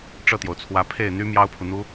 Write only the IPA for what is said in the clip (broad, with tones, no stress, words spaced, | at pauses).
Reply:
ʈ͡ʂɤ˥˩t̪jo˩ʊ̯t͡sʰwä˧˥ pʰe˥˩ɪ̯n̪y˥ mjɑ˥ʊ̯pʰu˨n̪u˥